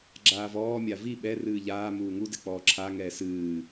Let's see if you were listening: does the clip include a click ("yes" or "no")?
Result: yes